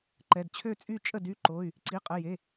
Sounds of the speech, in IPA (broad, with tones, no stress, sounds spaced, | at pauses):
ǃ ɛ˩˧˩ d t͡ɕʰ ø˥˨ t͡sʼ y˥˨ t͡ʃʼ ə˥˨ d y˥˨ ǃ o˩˧˩ y̯ | ǀ i˩˧˩ qʼ ə˩˧˩ j e˩˧˩